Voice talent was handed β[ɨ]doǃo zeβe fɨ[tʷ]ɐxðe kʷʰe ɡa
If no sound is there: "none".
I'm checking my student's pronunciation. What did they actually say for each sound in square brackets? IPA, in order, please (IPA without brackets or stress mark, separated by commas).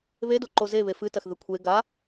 e, t